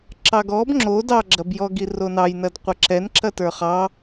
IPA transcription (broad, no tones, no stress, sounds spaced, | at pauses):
ǁ ɑ ɡ ɔ b ŋ͡ǁ o d ɑ ɡ͡ǁ ɐ b j ɔ ɡ i r o n ɑ j n ɐ d qʷ ɐ ǁ ɛ n ǁ ɐ t ə˞ χ ɑ